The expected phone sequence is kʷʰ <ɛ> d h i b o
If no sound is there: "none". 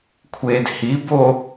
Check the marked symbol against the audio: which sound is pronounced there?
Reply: e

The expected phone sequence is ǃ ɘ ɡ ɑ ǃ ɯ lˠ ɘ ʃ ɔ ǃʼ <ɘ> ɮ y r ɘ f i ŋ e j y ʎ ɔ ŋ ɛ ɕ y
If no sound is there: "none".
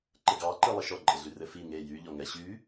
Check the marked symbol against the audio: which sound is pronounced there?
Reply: ɘ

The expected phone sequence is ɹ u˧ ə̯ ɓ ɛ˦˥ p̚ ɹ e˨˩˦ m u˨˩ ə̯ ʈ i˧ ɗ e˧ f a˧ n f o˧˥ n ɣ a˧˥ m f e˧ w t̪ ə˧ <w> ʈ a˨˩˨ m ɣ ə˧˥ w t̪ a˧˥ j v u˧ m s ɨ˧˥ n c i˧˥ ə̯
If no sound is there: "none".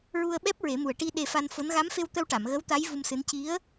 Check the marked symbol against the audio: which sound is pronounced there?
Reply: w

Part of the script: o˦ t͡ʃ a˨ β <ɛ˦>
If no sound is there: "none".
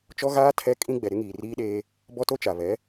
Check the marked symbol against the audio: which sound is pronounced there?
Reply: ɛ˨˦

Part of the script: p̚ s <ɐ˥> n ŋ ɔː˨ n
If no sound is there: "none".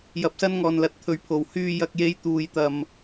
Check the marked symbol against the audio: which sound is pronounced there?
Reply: ɐ˥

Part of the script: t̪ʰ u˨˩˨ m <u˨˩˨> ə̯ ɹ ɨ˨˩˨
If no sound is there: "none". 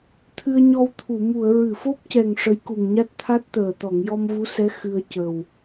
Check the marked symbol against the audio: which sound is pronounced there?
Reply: u˨˩˨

